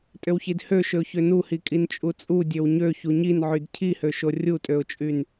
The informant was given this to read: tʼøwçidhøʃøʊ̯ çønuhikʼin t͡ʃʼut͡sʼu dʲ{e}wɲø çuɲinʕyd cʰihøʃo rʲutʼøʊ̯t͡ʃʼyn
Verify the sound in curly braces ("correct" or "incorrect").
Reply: incorrect